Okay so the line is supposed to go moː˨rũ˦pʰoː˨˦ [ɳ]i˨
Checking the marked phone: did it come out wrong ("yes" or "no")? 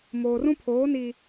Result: yes